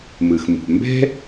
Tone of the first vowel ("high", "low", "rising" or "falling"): low